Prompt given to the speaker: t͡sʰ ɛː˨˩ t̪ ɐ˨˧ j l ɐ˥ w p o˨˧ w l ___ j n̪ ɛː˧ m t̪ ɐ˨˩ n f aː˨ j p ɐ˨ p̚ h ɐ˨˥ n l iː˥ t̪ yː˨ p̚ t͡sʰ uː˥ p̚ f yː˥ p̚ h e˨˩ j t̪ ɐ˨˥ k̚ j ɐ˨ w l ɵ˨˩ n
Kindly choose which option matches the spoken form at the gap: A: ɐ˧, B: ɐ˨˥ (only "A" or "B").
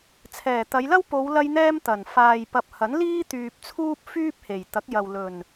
A